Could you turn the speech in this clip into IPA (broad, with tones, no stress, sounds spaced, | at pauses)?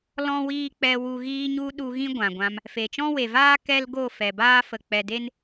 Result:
l ɔ̃˦ w iː˦ k͡p ɛ˧ w u˧ ɣ iː˧ ɲ u˧ ɗ u˧ ɣ ĩ˦ ɡʷ ã˨ ɡʷ ã˧ m | f e˨ t͡ʃ ɔ̃˦ w e˨ v aː˦ k ɛ˦ l ɡ o˦˨ f ɛ˨ b aː˦ f ə˨ k͡p ɛ˨ d e˦ n